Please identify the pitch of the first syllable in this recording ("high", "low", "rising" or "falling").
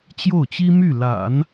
falling